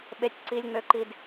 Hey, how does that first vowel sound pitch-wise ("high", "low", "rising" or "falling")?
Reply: high